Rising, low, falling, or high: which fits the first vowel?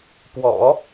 low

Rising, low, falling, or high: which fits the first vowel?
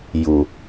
low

